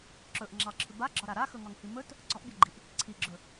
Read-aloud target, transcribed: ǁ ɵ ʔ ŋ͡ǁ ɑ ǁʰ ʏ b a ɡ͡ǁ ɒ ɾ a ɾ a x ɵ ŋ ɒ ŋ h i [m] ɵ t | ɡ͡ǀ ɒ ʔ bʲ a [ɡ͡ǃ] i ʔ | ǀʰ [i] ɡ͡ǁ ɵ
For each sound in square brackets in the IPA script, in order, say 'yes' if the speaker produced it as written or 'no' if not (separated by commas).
yes, yes, yes